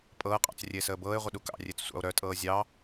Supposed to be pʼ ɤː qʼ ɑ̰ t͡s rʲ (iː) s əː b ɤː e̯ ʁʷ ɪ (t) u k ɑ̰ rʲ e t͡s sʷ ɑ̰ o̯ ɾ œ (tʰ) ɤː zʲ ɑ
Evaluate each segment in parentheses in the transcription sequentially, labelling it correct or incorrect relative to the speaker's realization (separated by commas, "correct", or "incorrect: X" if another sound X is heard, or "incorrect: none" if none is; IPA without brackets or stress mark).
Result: incorrect: eː, incorrect: ɗ, incorrect: tʼ